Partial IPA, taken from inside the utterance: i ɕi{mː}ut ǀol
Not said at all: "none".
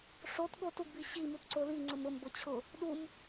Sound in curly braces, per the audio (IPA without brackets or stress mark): m